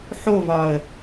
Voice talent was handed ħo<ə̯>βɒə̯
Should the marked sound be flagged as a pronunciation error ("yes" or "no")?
yes